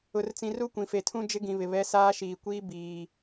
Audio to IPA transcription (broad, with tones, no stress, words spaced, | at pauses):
ʊ˨rt͡sĩ˨ ru˦kʷĩ˨fe˨tʰũ˦ d͡ʒɪ˦ɡĩ˨βɪ˨βɛ˨˦ saː˦ʃiː˨kʷiː˦ biː˨